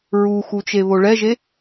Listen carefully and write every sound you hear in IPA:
ɹuxu t͡ʃeβoɭɛʒe

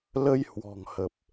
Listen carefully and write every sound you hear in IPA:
lə˧jhwɔ̤˨˩ŋhə˨˩p̚

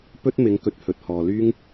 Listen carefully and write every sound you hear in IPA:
pɵ˥t̚ mɪ˨˥ŋ kɵ˨˥t̚hɵ˨t̚hɔː˨ lyː˥ŋ

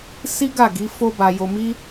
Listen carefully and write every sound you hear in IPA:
si˦ɡa˦˨ ɡi˨˦fo˦ba˧jo˧ mi˦

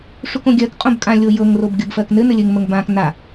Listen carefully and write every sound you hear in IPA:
ʂukõɡʲɜk qʼõbkʼã lʲojɤŋ robɡʲɤbfɜknɘ nɘlʲɘŋ məŋbãk na

